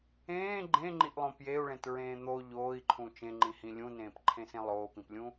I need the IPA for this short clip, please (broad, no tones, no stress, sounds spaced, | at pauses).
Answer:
ẽː ɡ͡ǃ ẽ ŋ͡ǃ i ʔ lˠ õ p j e u̯ ɭ ẽ t ɹ ẽː n̪ o ʎ oː i̯ ǃʰ ũ t͡ʃ ẽ ŋ͡ǃ ĩ h ĩ lʲ ũ n ẽː p ǃʰ ẽ s ẽ lˠ oː p ĩ p lʲ ũ